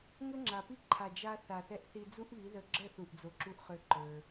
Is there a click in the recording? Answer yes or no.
yes